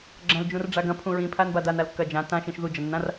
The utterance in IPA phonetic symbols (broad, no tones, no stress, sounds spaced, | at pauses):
ɡ͡ǁ ɐ̃ l d͡ʒ ũ r ɖ͡ʐ a ɡ ɐ̃ pʰ ũ ɹ ĩ pʰ a n b a d a n a l kː ɐ d͡ʒ ã t ã ʃ ĩ ʃ ð u d͡ʒ ɐ nː ã r